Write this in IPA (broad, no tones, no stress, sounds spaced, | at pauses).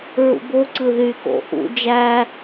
ɹ ṵ b o ǀ ɯ ð y k o̰ ʔ ṵ d͡ʒ æ